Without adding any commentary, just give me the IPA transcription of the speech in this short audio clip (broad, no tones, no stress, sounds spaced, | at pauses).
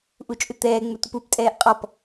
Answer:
ʔ u t͡ʃʼ ʏ t̪ ɛː ŋ͡m ʏ tʷ ɪ p u p tʼ ɛː ʔ qʼ ɔ p